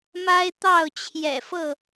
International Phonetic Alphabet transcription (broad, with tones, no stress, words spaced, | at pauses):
ma˦ɪ̯t̪ɑ˥˨ʊ̯t͡ɕʰjɛ̰˨˩fɤ˥˨